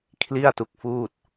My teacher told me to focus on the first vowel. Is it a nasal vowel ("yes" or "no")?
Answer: no